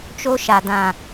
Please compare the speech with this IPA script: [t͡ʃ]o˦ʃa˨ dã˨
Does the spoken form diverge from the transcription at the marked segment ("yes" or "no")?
no